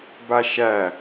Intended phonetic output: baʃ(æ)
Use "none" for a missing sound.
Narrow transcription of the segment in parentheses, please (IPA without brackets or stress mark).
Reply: æ